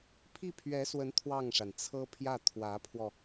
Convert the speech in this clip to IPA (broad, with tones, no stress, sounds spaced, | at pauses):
pʰ i˥˩ pʰ ɥ ɛ˧˥ s w ə˧˥ n t̪ʰ w ɑ˥˩ ŋ ʂ a˩ n t͡sʰ ɤ˥ pʰ j ä˥˩ t̪ʰ w ä˧˥ pʰ w ɔ˧